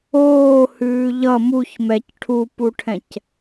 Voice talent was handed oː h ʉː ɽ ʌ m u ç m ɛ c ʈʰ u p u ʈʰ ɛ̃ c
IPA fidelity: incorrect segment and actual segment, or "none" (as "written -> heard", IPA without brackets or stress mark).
ɽ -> ʎ